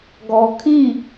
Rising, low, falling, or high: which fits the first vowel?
low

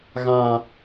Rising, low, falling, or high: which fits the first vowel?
low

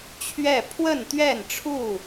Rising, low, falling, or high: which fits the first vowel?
falling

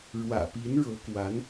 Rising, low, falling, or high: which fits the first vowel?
low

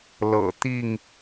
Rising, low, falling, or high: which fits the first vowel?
low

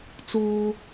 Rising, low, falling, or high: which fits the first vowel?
low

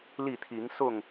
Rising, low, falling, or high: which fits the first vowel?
falling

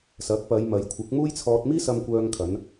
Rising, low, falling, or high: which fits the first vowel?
rising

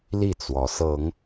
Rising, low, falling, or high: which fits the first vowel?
falling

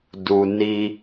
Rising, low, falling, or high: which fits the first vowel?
high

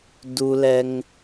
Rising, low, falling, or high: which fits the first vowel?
high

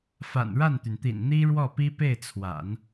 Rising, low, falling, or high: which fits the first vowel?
low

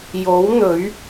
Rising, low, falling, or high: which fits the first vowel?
rising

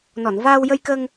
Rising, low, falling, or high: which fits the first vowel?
low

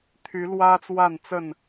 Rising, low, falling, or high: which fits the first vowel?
rising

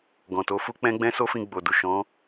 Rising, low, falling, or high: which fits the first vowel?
low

